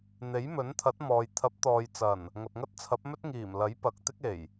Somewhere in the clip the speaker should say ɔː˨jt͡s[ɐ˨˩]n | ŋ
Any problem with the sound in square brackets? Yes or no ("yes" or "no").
no